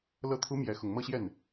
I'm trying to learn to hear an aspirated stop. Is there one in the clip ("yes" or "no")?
yes